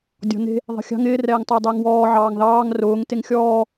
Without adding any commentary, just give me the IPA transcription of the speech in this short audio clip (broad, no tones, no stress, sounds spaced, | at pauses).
dʲ ɔ̤ n e̤ | ðˤ e̤ xʲ ɑ̤ ŋ ɪː r ɛː ŋ tˤ ʊː dˤ ɪː ŋ w ɔː ʕ ɑː ŋ ð ɑː ŋ r ʊː ŋ t e ŋ xʲ ɔː